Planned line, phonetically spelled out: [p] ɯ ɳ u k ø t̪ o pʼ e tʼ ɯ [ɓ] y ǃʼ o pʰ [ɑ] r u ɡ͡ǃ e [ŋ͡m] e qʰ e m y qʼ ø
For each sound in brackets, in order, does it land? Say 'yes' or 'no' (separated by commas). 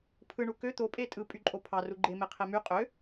no, no, yes, no